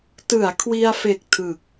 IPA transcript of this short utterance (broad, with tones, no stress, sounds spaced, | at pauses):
t ɯ˩˦ a̯ kʰ w i˧ a̯ f e˨˩ k̚ tʰ ɯ˨˩ k̚